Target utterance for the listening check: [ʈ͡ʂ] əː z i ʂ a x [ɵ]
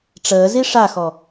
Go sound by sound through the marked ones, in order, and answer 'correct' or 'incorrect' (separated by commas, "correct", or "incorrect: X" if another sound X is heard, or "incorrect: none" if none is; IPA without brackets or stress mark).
correct, incorrect: ɔ